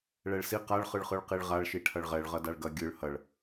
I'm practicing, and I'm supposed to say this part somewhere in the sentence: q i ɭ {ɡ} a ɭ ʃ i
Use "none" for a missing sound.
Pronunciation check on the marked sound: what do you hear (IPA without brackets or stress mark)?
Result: ʁ